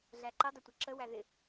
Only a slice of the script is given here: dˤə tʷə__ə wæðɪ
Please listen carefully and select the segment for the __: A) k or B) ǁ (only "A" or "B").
B